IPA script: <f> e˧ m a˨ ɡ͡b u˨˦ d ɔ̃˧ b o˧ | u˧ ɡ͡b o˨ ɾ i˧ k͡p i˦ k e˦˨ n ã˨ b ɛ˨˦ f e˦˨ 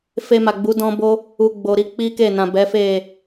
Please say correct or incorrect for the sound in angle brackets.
correct